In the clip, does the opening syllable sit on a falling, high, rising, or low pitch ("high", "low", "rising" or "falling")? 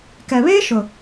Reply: low